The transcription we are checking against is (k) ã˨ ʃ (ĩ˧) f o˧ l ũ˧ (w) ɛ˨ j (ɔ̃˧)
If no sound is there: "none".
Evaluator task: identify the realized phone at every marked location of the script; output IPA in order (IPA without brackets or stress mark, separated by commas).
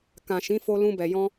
k, ĩ˨˦, b, ɔ̃˧